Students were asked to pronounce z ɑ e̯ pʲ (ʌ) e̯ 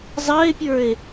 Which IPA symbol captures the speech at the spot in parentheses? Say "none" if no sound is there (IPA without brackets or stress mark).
ə˞